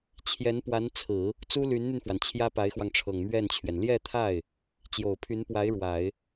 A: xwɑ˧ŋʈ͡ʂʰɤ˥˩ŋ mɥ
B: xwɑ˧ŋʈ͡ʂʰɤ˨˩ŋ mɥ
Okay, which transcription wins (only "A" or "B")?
B